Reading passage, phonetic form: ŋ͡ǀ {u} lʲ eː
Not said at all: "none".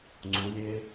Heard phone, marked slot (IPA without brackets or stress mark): u